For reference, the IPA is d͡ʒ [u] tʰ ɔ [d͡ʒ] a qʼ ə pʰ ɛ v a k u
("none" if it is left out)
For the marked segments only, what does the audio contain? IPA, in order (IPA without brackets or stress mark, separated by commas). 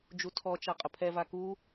u, t͡ʃ